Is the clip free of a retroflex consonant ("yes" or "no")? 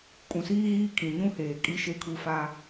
yes